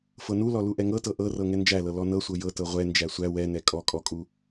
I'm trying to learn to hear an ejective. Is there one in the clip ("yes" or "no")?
yes